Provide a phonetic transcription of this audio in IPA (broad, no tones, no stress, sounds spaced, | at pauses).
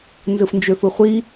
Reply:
n z ɯ f n d͡ʒ ø f ɯ χʷ i